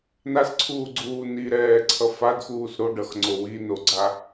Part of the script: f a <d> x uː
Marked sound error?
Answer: no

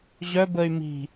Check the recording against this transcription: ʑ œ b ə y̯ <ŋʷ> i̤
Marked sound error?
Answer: yes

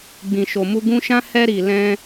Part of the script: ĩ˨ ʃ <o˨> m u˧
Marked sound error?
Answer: no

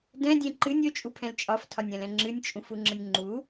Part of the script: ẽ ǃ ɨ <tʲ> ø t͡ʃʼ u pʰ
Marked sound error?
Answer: yes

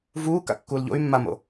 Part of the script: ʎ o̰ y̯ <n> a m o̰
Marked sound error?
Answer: yes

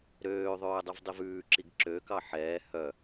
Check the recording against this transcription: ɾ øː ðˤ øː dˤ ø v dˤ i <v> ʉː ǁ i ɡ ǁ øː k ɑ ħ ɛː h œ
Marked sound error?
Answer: no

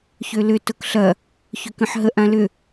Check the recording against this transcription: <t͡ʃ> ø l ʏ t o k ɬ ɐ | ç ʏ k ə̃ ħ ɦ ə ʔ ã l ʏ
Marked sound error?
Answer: yes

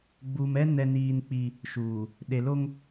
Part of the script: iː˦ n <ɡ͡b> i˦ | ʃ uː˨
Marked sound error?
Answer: yes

